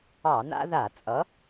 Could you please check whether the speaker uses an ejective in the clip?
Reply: yes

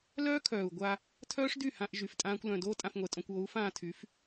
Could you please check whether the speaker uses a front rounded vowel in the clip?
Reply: yes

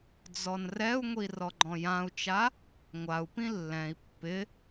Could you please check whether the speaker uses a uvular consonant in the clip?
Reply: no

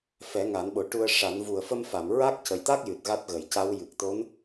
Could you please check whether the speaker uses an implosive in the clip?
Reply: yes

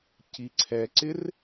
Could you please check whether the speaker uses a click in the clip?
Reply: yes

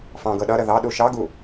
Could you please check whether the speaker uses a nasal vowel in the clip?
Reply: yes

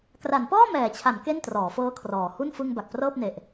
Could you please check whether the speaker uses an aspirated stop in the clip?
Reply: yes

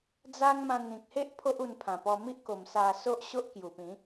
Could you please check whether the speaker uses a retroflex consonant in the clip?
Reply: no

